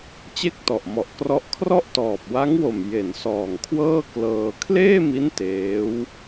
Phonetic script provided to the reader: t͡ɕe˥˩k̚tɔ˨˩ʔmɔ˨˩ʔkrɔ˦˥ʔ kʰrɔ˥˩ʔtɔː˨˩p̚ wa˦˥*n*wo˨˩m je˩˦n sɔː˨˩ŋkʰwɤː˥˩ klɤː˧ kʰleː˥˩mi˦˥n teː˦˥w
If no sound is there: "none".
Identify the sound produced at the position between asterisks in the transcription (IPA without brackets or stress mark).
ŋ